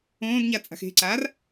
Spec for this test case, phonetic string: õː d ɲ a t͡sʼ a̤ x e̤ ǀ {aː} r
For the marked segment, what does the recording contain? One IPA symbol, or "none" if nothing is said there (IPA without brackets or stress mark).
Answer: aː